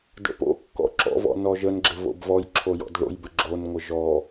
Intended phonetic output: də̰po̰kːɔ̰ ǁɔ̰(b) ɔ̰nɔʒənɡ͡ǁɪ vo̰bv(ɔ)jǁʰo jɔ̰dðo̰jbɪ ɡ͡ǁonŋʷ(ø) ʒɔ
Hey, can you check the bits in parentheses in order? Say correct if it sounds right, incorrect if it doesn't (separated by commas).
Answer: incorrect, correct, incorrect